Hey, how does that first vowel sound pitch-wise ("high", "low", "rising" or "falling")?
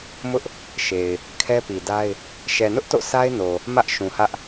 high